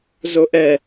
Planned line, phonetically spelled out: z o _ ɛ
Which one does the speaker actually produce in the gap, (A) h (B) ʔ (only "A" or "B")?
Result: B